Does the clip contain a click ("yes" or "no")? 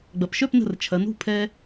no